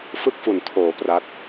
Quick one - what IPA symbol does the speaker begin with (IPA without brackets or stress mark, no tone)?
f